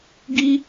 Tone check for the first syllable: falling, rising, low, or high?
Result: high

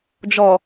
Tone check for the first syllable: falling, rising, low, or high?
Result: low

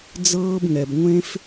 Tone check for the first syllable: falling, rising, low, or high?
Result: high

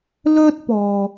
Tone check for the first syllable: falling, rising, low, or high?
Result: high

